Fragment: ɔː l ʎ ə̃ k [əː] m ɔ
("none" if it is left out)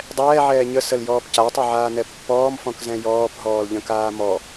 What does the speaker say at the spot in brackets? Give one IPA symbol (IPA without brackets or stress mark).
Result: aː